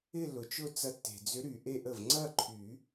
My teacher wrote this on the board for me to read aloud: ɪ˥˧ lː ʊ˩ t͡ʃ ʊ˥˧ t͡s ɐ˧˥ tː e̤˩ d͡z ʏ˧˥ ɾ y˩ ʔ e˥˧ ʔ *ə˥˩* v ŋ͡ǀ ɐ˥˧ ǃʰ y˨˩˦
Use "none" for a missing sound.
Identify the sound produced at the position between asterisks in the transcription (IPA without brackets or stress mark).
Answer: ə˥˩